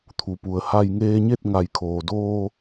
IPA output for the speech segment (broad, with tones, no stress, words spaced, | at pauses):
t̪ʰu˩pu˩ə̯ha˧j ŋeː˧ɲe˥˨t̚ ŋa˩jkʰoː˩doː˧